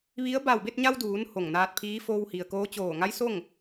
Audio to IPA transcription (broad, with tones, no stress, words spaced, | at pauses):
ʋi˧˥ə̯ ba˧˩wbe˥˨t̚ɲa˧w duː˩˧n ho˧˩ŋnaː˧t̚pʰiː˧˥ foː˧whi˩ə̯koː˧˥ t͡ɕoː˧˩ŋa˧˥jso˥˨ŋ